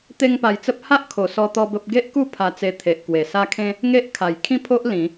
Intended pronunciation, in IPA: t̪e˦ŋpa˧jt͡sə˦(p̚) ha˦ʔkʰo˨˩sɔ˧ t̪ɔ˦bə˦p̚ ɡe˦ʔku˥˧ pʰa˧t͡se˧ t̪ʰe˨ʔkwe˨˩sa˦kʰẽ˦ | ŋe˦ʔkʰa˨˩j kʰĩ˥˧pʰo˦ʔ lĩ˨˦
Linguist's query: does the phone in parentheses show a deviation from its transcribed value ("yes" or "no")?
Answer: no